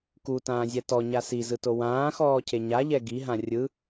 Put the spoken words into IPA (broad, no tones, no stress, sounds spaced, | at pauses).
k u t ãː zʲ ɛ t ɔ ɲ a s i z ɯ t o w ãː x ɔː cʰ e ɲ a ʎ ɛ ɡ i ɦ ã rʲ ɯ